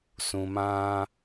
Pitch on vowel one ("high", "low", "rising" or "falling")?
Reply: low